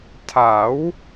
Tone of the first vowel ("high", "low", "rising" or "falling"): rising